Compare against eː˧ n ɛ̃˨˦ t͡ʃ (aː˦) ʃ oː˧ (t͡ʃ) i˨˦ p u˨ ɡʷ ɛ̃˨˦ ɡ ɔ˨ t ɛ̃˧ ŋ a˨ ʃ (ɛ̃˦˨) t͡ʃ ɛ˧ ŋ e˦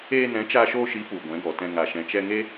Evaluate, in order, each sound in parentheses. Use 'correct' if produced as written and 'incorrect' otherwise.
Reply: incorrect, incorrect, incorrect

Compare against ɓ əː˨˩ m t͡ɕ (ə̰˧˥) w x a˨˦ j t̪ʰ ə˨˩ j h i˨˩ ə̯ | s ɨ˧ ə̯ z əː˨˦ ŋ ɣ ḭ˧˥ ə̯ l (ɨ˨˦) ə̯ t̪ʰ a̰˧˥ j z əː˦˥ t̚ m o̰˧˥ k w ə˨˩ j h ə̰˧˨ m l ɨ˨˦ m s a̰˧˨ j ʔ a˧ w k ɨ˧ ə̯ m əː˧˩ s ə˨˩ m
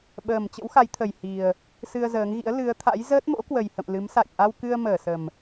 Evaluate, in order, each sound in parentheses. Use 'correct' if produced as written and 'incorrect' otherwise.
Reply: correct, correct

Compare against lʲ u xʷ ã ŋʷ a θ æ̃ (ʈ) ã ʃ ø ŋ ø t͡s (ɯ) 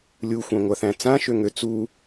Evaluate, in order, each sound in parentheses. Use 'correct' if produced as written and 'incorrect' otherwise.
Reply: incorrect, incorrect

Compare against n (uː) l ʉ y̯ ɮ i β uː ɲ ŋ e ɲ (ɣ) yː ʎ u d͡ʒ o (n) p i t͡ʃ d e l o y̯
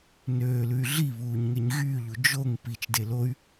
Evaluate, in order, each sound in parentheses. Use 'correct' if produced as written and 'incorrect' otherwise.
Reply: incorrect, correct, incorrect

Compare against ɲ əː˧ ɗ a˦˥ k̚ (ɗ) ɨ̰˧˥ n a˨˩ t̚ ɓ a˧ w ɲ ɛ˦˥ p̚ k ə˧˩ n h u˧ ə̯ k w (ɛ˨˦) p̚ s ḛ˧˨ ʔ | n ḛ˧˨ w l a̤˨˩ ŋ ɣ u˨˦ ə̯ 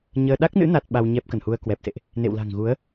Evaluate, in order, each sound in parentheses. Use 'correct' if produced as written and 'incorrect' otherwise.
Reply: incorrect, incorrect

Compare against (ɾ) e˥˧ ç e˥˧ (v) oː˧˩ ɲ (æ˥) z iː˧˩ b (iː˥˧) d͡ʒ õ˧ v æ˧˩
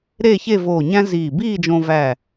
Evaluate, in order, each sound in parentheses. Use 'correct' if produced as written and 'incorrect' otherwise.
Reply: correct, correct, incorrect, correct

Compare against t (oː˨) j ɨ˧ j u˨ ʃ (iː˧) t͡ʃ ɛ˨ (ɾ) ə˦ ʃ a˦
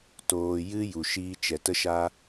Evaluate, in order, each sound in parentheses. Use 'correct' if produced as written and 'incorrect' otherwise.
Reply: correct, incorrect, incorrect

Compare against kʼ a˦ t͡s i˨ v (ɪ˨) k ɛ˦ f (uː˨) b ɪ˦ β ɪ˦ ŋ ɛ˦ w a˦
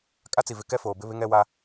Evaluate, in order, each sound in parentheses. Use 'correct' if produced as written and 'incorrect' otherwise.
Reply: correct, incorrect

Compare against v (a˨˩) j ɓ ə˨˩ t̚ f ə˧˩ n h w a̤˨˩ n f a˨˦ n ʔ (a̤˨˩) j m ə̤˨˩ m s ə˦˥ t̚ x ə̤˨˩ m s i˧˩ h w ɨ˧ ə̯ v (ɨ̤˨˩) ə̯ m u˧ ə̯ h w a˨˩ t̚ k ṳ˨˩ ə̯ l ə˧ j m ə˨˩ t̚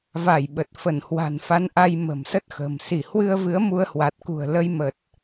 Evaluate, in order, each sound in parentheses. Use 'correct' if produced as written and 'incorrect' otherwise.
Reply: incorrect, incorrect, incorrect

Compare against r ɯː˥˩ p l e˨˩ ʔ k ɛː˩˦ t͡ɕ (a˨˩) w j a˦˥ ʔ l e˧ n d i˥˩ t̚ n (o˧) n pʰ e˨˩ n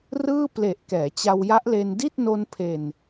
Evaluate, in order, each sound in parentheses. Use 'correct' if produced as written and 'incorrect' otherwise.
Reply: incorrect, correct

